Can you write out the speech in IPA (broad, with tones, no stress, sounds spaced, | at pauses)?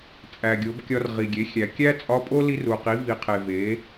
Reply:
t͡sʼ æ˩ ɡʲ o˩˧ b kʲ ɒ˧ r ʁ i˩ ɡʲ e˩˧ xʲ æ˩ kʲ æ˥ t͡sʼ ɒ˧˥ pʼ o˥ l i˧ r u˩ q i˩˧ v i˩ qʰ e˩ v e˩˧